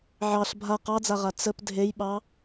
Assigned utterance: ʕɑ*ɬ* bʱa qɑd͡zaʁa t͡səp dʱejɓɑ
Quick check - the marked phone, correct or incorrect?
correct